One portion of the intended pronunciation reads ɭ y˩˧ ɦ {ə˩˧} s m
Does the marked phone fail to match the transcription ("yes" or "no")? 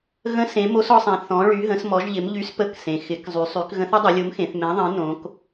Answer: yes